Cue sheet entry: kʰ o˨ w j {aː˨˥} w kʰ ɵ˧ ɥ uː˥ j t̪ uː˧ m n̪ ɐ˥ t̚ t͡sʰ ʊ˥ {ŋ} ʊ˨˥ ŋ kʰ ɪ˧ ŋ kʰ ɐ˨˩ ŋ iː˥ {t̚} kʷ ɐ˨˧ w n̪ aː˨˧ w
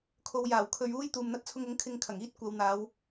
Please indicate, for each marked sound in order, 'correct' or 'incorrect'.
incorrect, correct, correct

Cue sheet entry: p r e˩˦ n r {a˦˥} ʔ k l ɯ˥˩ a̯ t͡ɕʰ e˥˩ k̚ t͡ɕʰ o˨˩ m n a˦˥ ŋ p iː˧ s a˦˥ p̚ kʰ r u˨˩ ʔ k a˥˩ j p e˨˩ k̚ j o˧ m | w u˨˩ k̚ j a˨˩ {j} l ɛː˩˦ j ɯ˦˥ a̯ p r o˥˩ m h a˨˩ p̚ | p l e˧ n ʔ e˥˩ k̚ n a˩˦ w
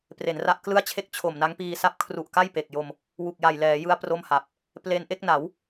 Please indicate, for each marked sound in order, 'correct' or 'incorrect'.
correct, correct

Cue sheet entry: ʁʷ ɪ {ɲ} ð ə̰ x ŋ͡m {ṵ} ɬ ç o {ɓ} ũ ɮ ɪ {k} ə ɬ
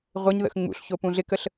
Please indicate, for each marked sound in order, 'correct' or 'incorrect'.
correct, correct, incorrect, correct

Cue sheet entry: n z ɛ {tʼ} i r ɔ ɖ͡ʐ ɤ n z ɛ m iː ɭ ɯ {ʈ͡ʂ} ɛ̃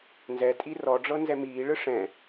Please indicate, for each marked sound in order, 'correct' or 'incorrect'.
correct, incorrect

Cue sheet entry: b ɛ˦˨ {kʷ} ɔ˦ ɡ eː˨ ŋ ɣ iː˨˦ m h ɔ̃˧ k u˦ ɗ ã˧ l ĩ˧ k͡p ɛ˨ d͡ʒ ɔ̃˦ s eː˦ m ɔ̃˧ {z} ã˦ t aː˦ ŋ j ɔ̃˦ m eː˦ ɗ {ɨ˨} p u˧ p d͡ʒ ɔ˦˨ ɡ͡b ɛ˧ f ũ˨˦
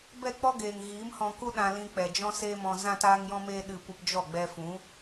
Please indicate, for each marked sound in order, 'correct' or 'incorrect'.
incorrect, correct, incorrect

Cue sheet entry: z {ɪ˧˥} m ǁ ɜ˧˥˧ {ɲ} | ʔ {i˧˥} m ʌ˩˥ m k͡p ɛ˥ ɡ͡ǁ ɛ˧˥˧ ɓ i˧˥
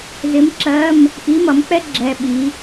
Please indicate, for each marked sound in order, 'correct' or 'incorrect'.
correct, incorrect, correct

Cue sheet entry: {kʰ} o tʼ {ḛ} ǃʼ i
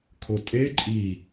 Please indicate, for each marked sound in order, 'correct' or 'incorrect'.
correct, incorrect

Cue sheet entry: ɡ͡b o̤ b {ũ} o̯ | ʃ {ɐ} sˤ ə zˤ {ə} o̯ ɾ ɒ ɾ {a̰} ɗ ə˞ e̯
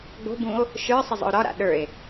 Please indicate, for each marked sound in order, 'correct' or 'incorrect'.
correct, incorrect, incorrect, correct

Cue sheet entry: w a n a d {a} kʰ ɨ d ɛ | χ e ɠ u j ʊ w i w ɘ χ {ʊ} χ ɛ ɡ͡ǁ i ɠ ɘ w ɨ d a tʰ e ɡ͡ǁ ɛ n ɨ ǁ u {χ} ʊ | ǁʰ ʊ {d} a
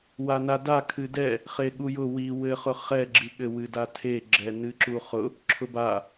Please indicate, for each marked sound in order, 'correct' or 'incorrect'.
correct, correct, correct, incorrect

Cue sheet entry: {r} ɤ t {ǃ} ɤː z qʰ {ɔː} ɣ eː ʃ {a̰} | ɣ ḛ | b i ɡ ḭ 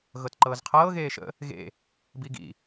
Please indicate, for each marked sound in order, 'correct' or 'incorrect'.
incorrect, correct, incorrect, incorrect

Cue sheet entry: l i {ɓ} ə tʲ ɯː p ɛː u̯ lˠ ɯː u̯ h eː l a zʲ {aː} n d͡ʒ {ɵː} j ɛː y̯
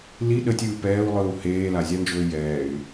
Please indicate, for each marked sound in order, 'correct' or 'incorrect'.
incorrect, incorrect, correct

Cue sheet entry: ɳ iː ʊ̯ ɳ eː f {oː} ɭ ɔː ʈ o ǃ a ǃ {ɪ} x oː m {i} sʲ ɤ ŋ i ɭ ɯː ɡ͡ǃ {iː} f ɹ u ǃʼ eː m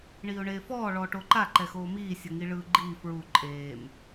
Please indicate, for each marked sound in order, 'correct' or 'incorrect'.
incorrect, incorrect, incorrect, correct

